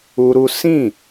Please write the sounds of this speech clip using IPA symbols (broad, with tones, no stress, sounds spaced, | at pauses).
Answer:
u˦ ɾ u˦ s ĩ˦˨